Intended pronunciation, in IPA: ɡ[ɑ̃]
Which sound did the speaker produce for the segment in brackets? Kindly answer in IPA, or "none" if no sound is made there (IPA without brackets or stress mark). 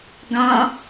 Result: ɑ̃